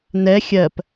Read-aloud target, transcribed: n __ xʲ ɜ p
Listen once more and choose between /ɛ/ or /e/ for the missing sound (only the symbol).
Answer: ɛ